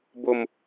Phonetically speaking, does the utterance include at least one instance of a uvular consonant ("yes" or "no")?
no